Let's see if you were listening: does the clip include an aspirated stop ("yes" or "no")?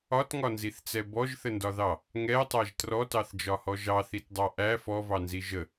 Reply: no